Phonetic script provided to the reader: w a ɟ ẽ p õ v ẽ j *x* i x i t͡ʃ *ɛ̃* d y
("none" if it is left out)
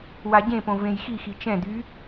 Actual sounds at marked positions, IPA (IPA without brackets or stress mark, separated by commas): x, ɛ̃